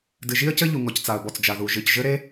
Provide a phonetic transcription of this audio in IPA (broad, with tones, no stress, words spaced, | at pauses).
dɨ˩ʒi˥ə̯cɘ˥ ʎu˩ŋɔ˩ct͡sa˩ə̯ bɔ˩t͡sd͡ʒa˩ðu˩ ʒɨ˩cʒɘ˥ɾe˥